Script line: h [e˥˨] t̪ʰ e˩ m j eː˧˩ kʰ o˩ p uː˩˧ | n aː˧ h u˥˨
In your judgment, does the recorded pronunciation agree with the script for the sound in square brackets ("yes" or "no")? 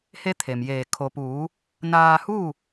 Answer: no